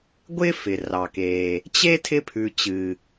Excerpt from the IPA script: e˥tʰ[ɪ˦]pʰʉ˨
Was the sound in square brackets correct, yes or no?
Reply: yes